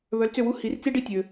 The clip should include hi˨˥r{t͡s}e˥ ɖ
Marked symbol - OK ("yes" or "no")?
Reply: yes